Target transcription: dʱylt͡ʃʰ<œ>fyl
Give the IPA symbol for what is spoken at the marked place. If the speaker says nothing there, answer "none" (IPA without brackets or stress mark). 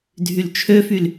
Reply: ø